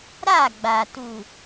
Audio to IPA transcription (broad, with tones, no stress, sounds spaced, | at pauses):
ɾ a˦˨ ɡ͡b a˨ t u˨